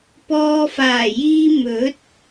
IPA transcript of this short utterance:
pɔː˧faː˨˩jiː˧ mɵ˨˥t̚

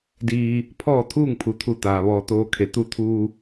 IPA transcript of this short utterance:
diː˧ | pʰɔː˥˨t̪ʰuː˥˨ŋ pʰu˩t̪ʰu˧˩ t̪aː˩ ʋɔː˩ t̪oː˧kʰe˩ t̪u˧t̪ʰuː˧

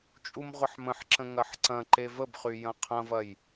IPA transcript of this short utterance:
t͡ʃʼumʁʷɐħmə̃ħǁə̃ ŋɐħǀɐ̃ǃe vəbχy jɐ̃qʰɐ̃vɐj

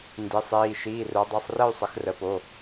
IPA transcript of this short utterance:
ndi˩˧sˤiː˩˧˩ ʃiː˩˧˩rə˞˩˧dˤi˩˧˩sˤ rə˥˧y̯ sˤə˩˧xrə˩˧po˩˧˩

